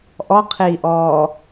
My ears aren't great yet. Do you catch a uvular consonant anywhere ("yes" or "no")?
yes